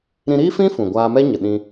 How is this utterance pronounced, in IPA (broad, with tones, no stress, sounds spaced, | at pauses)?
ɾ ĩ˧ ɾ iː˦ f ĩ˦ f ũ˨ ɡʷ aː˧ m ɛ˦ ɲ ə˨ ɗ ĩ˧